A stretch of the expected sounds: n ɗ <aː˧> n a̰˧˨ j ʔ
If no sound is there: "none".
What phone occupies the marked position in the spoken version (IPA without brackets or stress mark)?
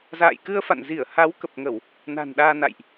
aː˧